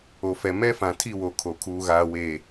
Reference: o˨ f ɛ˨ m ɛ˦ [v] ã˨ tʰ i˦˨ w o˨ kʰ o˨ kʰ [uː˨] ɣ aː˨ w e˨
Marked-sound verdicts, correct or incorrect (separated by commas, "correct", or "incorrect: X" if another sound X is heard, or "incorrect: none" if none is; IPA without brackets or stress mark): incorrect: f, correct